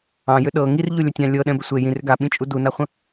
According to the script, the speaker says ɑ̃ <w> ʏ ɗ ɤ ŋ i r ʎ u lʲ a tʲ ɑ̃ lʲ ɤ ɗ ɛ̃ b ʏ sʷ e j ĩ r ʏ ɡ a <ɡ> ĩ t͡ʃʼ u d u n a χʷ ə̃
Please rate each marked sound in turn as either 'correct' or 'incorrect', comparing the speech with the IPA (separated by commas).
incorrect, incorrect